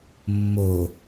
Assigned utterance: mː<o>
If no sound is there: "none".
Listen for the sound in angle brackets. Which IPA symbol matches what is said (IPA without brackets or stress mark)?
o